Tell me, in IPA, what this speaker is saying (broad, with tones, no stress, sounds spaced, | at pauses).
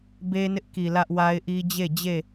b e˦ n ɪ˦ ʔ k i˨ l ä˦ ʔ w a˦ ɪ̯ ʔ i˦ d͡ʑ e˦˨ d͡ʑ e˦˨